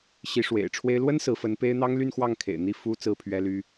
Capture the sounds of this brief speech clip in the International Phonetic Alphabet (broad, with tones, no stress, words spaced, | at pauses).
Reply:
ɕi˧˥ʂwḛ˨˩ɪ̯ʈ͡ʂʰwe˥ɪ̯ lwə˥n sɹ̩˧˥fə˧˥npe˥ɪ̯ n̪ɑ˥ŋly˥˧nxwɑ˥˩ŋ kʰḛ˨˩ɪ̯n̪i˥˩fu˥ t͡sɹ̩˥˩pʰɥɛ˥ly˥